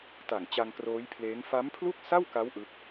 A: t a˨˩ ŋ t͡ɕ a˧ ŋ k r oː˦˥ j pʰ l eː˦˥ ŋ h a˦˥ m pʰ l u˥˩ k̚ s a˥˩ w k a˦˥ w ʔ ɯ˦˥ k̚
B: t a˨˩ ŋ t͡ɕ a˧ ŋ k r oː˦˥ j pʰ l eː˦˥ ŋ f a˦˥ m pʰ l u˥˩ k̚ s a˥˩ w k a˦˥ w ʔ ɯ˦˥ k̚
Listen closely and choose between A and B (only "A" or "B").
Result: B